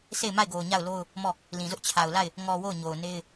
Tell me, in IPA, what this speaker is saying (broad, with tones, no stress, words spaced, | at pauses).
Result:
se˦˨ɪ̯ma˦˨ɪ̯ɡo˨ʊ̯ ɲa˦˨ʊ̯lo˦ʊ̯ | mɔ˦˨ | lĩ˨zʊ˦ʔ t͡ɕʰa˨ʊ̯la˦˨ɪ̯ | ŋɔ˨ wo˦˨ʊ̯ɲo˨ʊ̯ne˦ɪ̯